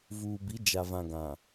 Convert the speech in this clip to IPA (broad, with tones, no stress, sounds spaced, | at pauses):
v uː˨ b i˨˦ d͡ʒ a˨ v ã˨ ɡ ã˨